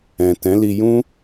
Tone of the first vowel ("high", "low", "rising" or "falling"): low